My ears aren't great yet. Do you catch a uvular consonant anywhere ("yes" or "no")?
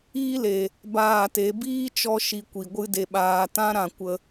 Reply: no